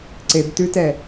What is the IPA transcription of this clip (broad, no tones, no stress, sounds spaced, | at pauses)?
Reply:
ǀ e b t ʉ t ɛ